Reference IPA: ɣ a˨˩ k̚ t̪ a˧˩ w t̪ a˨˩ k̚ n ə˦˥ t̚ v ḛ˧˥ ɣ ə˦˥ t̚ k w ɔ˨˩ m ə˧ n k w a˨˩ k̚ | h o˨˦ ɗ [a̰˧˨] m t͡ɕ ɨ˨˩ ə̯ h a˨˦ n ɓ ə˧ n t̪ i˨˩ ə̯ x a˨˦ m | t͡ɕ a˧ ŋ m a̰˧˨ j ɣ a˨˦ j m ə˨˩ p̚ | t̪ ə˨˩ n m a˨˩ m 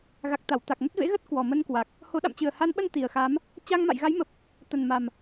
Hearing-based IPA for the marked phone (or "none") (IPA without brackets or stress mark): a̰˧˨